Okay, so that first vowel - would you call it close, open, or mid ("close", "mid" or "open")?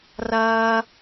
open